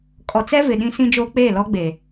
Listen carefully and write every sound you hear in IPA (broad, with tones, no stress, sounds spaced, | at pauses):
kʼ ɔ˨ t͡s ɛ˦ v ɪ˨ ɗ ĩ˦ s ĩ˦ d͡ʒ oː˦ k͡p eː˦˨ l ɔ˦ ɡ͡b e˨